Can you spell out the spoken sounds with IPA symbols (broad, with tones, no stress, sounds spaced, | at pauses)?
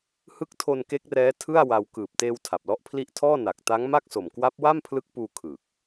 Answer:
h ɯ˦˥ k̚ tʰ o˧ n k e˦˥ k̚ r ɛː˦˥ tʰ ɯ˥˩ a̯ w a˧ w k ɯː˨˩ p̚ t eː˧ w tʰ a˨˩ p̚ l ɔ˦˥ ʔ pʰ l i˦˥ ʔ tʰ ɔː˥˩ n a˨˩ k̚ t a˦˥ ŋ m a˥˩ k̚ s o˨˩ m k w a˦˥ p̚ w a˥˩ m pʰ l ɯ˦˥ k̚ p uː˧ kʰ ɯ˨˩ k̚